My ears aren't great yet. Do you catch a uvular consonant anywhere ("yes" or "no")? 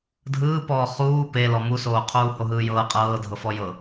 yes